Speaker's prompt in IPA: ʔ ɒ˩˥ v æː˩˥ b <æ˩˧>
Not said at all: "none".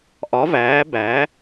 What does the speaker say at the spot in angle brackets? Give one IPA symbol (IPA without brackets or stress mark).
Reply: æ˩˥